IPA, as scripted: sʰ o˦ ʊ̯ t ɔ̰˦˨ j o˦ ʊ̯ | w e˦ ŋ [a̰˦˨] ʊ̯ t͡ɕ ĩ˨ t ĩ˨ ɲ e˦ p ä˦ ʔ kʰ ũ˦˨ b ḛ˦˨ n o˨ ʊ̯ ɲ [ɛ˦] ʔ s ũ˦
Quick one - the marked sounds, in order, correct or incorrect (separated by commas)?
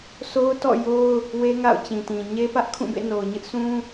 correct, incorrect